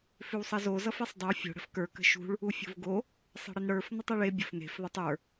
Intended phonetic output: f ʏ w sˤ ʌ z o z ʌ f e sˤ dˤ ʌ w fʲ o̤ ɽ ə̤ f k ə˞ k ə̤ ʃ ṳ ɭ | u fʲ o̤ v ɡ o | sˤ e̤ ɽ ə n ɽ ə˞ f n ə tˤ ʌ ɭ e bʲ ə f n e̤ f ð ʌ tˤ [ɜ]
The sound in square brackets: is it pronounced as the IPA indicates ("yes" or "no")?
no